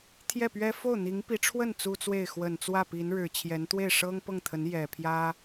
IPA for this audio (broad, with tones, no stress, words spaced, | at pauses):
t̪ʰjɛ˥˩pɥɛ˥ fo˥˩ʊ̯n̪i˧˥ŋpi˧˥ʈ͡ʂʰwə˥˩n t͡su˥t͡swe˥˩ɪ̯ xwə˨˩nt͡swä˥˩ pi˧˥nɻɻ̩˨˩t͡ɕʰjɛ˧˥n t̪we˥˩ɪ̯ʂɤ˥ŋpɤ˥˩ŋt̪ʰə˧˥n jɛ˨˩pʰjä˥